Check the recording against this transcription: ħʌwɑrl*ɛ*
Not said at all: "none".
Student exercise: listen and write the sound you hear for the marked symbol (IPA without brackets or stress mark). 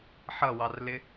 ɪ